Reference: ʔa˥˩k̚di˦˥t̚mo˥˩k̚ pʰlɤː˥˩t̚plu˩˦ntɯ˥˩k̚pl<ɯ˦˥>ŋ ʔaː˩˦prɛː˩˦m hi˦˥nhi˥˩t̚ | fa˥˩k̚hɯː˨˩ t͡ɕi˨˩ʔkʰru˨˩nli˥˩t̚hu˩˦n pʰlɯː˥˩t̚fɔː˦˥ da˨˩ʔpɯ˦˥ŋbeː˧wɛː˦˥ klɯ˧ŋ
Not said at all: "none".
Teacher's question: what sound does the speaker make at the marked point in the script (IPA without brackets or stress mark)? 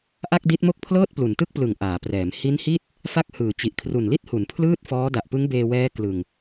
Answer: ɯ˨˩